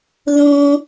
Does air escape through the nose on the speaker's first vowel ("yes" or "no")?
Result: yes